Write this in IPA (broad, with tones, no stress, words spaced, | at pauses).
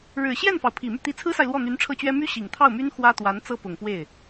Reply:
ɻɻ̩˨˩ɕjɛ˥˩nfɑ˩ʊ̯ pʰi˨˩my˥˩ t̪i˧˥t͡sʰɹ̩˥sa˨ɪ̯ lwɔ˥˩n̪y˧˥nʈ͡ʂʰɤ˥˩t͡ɕɥɛ˥ my˥ ɕi˨˩ŋt̪ʰɑ˥˩ʊ̯my˥n xwä˥t̪wa˧˥n t͡sɤ˥pʊ˨˩ŋpwe˥˩ɪ̯